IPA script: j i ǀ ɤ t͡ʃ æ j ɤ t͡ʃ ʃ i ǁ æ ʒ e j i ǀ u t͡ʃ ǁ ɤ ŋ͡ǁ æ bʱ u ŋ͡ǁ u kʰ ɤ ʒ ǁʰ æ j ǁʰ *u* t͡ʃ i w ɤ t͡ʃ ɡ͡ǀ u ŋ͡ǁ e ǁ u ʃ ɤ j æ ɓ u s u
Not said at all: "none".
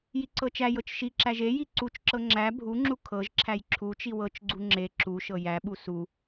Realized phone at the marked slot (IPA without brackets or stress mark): u